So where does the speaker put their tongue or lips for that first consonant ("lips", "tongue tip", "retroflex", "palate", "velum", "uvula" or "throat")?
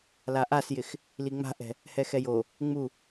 tongue tip